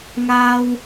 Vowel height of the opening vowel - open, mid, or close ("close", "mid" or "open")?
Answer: open